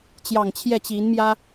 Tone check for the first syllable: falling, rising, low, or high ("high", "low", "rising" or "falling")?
low